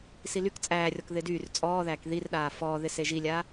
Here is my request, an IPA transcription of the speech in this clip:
s i l y k t͡sʼ æː rʲ ɔ k ð ɪ d yː r t͡sʼ ɔː ð æː k ð i r ɗ aː f ɔː ð ɪ s e ʒ i lʲ aː

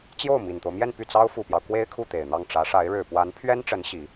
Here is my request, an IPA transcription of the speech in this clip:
t͡ɕ j o˥˩ ʊ̯ m i˨˩ n t̪ o˦ ʊ̯ m j ɛ˥˧ n p y˥˩ t͡s ɑ˥ ʊ̯ f u˨˩ p j ɑ˦ ʊ̯ k w e˥ ɪ̯ kʰ u˥˩ t̪ e˨˩ ɪ̯ n̪ ɑ˥˩ ŋ ʈ͡ʂ ä˧˥ ʂ a˧˥ ɪ̯ ɻ ɻ̩˨˩ p w a˧˥ n pʰ ɥ ɛ˥ n ʈ͡ʂ ə˧˥ n ɕ i˧˥

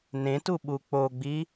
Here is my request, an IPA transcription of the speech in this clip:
n ẽ t u ɓ u k͡p o ɡ͡b i

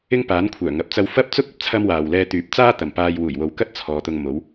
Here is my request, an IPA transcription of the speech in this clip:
ɪ˥ ŋ p aː˨˥ n kʷʰ œː˨˩ ŋ ɐ˨ p̚ t͡s ɐ˧ w f ɐ˥ p̚ t͡s ʊ˥ k̚ ɐ˨ p̚ t͡sʰ ɐ˥ m w aː˨ w l ɛː˧ t̪ yː˨˥ p̚ t͡s aː˥ t̪ ɐ˨ m p aː˧ j w uː˨˩ j w o˨ w k ɐ˥ t̚ t͡sʰ ɔː˨˧ t̪ ʊ˧ ŋ m o˨˥ w

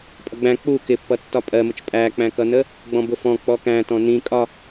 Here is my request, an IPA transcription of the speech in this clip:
pʼ ʌ ɡ͡b æ̃ k͡p u k ɪ pː ʌ tː ɒ pʼ ɜ m ʊ t͡ʃ pʼ æ k͡p æ̃ k ʌ n ə | ɡ͡b ɔ̃ b ʊ f ɔ̃ k͡p ɔ k æ̃ t ɔ̃ n ĩ kʼ ɒ

